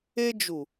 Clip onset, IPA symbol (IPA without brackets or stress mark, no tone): e